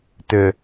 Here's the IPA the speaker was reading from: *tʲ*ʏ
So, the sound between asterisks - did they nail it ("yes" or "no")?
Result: no